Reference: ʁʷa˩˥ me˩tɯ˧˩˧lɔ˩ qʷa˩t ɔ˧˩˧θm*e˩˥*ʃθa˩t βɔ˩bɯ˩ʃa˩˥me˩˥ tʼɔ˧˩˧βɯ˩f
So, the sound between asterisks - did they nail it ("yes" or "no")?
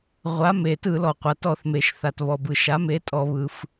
no